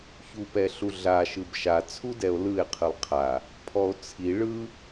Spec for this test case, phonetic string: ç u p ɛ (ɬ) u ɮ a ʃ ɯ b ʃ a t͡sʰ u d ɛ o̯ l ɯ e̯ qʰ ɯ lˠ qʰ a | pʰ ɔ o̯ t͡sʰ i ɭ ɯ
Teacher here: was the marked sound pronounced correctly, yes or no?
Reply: yes